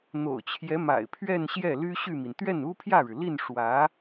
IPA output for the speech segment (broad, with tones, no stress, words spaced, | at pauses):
n̪o̰˨˩ʊ̯t͡ɕʰjɛ˧˥ma̰˨˩ɪ̯ pʰɥɛ˥˧nɕjɛ˥˩ ly˥ɕy˥˩mi˩n t̪ɥɛ˥˩nu˥pʰjä˥˩ɻɻ̩˩ li˥˩n ʂwä˧˥